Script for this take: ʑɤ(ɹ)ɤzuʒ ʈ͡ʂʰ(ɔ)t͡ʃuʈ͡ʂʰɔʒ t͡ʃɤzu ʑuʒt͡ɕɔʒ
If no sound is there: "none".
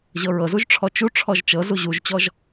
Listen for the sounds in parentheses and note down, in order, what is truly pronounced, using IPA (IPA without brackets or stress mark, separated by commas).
ɹ, ɔ